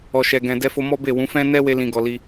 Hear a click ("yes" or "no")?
no